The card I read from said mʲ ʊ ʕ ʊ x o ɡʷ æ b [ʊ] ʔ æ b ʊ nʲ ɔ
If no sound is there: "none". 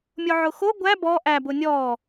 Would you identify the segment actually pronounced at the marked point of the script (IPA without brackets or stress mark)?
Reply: ɔ